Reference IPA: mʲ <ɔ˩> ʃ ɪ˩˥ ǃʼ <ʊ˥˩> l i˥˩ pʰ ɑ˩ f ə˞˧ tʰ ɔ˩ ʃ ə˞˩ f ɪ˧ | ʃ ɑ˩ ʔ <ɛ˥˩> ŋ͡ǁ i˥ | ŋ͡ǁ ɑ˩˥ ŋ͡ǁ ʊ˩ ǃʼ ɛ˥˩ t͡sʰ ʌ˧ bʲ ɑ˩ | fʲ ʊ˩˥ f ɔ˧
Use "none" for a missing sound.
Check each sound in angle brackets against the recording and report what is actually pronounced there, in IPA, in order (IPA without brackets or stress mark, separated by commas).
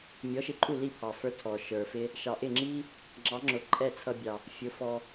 ɔ˩˥, u˥˩, ɪ˥˩